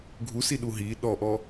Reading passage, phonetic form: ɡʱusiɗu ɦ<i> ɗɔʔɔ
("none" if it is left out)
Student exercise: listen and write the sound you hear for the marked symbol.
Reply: i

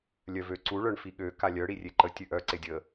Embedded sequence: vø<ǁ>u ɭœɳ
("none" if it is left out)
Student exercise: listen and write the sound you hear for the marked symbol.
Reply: ǀ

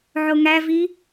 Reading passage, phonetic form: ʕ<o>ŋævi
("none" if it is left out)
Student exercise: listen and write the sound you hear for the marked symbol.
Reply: o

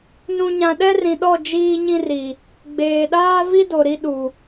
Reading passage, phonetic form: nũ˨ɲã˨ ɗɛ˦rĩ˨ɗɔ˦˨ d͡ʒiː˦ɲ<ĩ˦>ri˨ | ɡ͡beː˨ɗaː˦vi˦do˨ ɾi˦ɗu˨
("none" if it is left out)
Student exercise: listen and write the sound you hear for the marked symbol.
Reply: ĩ˦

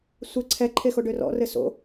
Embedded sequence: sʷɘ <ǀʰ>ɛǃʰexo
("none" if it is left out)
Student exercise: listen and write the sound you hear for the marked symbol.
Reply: ǀʰ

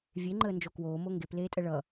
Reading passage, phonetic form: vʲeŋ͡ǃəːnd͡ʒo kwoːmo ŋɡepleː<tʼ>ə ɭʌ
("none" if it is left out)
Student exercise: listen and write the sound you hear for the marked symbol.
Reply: tʼ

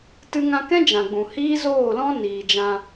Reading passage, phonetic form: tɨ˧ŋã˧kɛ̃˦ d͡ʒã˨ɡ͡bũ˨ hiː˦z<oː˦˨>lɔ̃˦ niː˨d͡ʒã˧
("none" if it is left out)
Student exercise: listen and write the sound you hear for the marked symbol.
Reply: oː˦˨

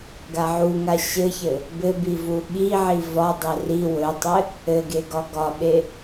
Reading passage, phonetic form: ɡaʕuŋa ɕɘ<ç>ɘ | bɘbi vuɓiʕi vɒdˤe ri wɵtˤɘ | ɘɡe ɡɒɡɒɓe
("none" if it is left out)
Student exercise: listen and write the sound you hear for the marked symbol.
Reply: ç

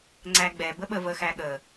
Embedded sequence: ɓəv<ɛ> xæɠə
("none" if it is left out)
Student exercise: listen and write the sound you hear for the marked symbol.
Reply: ə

